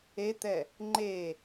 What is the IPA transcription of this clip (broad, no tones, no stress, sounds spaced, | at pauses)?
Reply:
e t̪ ɛ | ŋ͡ǃ e